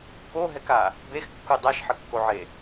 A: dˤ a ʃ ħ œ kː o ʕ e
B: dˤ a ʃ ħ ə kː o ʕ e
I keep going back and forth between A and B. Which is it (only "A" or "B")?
B